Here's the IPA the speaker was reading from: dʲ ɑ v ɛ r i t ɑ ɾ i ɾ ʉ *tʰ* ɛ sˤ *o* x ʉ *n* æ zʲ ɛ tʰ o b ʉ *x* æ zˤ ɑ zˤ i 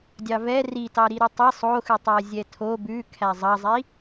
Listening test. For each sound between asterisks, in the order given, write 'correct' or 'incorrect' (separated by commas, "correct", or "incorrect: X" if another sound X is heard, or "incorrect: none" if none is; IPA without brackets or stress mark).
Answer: incorrect: tˤ, correct, incorrect: tˤ, incorrect: kʰ